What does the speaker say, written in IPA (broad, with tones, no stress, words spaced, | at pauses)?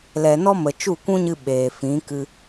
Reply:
lɛ˨nɔ˧mə˨ t͡ʃu˦˨kʷũ˦ɲɨ˧ ɓeː˨fĩ˨˦kɨ˧